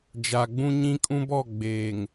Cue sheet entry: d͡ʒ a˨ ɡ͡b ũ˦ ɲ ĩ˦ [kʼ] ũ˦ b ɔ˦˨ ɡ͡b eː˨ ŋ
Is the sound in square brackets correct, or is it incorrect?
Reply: correct